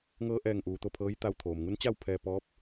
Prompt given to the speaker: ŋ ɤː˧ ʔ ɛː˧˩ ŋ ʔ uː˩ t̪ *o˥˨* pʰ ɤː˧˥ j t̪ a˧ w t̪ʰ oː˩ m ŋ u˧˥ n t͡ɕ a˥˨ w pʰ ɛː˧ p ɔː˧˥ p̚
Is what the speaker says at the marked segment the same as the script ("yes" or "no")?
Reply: yes